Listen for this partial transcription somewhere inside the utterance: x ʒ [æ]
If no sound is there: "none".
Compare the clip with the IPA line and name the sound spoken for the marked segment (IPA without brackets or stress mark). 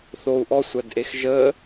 ə